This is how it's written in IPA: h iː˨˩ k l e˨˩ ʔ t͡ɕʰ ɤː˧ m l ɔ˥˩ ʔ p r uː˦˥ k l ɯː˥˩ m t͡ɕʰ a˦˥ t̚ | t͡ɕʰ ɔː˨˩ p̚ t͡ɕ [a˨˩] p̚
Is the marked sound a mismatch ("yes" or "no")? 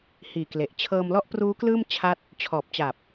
no